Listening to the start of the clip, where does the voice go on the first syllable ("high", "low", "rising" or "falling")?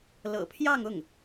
low